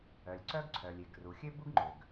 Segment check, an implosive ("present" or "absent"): absent